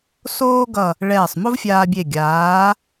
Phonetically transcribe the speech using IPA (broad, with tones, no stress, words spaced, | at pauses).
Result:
soː˥ɡʌ˧˩ | ɭɛː˧˩sˤmo˥vfʲaː˧bʲe˧˩ ɡʲaː˩˧